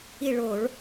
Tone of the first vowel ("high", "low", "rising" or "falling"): falling